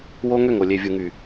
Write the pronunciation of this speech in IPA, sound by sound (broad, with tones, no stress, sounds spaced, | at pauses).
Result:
w o˦ ŋ ø˦˨ ŋ o˨ lʲ e˨ vʲ u˨ ŋ y˨